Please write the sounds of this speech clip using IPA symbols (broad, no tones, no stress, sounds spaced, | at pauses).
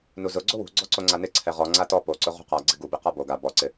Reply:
n u z ʊ ɡ͡ǀ o w ṳ ɡ͡ǀ ɔ ǀ o ŋ͡ǀ a n ɪ ǀʰ ɛ ʁ ɔ ŋ͡ǀ a t ɔ p o ǀ ʊ ʁ ṳ q a ɡ͡ǀ ɪ ɡ u b i q a b o ɡ a b ɔ ǀ ɪ